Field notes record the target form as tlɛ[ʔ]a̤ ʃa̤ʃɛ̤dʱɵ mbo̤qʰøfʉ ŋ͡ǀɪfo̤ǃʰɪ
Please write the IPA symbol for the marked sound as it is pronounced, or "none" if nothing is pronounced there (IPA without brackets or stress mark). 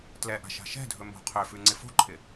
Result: ʔ